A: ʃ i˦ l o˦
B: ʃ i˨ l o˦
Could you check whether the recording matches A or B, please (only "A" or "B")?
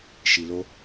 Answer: B